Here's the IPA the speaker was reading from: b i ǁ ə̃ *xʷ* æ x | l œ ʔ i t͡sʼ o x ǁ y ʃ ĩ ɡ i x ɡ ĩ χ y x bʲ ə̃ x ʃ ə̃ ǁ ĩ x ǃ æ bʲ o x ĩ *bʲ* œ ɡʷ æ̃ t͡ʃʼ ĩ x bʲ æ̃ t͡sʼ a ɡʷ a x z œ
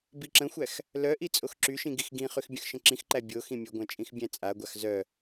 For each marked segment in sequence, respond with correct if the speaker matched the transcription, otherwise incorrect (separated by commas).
correct, incorrect